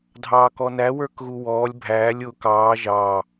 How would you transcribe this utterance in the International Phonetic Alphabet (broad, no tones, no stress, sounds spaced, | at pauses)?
dʱ ɑː k ɔ n æ w ə˞ k ɣ u w ɔː lʲ bʱ æː lʲ ʊ k ɑː ʒ ɑː